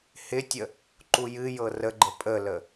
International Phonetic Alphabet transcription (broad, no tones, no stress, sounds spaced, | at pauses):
h ɪ tʲ ə | ǃ u j ɨ j ɤ r ə ɡ͡ǃ ə pʼ ə l ə